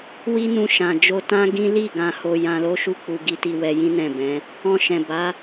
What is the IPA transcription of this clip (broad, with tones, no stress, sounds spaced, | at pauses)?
w i˦ n ũ˧ ʃ ã˨ d͡ʒ o˧ t ã˦ ɡ ĩ˦ l i˦˨ ɡ ã˧ h o˧ j ã˧ l o˦ ʃ u˦˨ k͡p u˧ ɡ i˧ t i˧ w ɛ˧ j ĩ˦ n ɛ̃˦˨ b ɛ̃˨˦ | ɔ̃˧ ʃ ɛ̃˨ b a˨˦